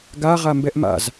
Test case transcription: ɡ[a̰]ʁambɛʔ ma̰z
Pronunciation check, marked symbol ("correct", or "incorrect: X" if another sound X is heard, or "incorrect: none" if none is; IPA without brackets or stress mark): incorrect: a